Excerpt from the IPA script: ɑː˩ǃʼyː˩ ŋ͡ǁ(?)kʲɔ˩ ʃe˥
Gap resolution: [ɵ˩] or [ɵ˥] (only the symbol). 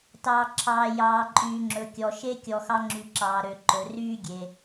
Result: ɵ˩